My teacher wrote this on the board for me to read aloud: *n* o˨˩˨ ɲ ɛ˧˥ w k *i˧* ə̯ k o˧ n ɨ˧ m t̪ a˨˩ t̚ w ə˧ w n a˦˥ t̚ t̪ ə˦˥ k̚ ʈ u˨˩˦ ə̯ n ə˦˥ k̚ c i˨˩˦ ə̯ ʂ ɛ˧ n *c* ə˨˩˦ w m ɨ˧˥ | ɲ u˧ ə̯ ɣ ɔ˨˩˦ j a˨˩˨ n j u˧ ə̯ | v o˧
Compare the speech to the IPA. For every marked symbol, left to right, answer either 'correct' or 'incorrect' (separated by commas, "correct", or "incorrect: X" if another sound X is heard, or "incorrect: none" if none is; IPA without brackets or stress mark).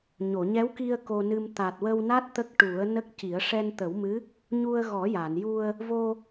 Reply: incorrect: ɲ, correct, incorrect: t̪